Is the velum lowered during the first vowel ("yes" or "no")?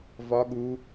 no